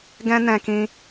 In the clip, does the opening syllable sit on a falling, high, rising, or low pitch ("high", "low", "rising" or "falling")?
high